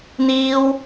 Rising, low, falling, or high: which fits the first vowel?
high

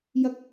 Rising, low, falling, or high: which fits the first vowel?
high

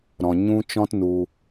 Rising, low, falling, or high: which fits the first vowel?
low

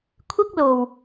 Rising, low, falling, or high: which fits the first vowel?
high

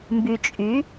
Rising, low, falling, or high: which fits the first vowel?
low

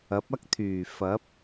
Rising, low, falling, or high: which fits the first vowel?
rising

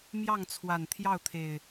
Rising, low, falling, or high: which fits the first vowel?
falling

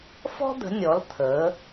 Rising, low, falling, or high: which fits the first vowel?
high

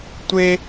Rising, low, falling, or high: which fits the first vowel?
high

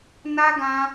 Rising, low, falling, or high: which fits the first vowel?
high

